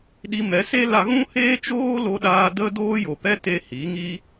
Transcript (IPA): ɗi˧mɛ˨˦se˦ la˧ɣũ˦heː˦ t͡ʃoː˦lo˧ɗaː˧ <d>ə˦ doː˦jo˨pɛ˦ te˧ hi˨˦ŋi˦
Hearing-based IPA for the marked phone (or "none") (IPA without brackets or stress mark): d